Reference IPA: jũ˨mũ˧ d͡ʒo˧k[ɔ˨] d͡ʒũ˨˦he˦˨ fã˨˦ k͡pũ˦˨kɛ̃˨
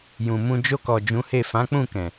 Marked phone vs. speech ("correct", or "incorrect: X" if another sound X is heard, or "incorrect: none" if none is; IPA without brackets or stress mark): correct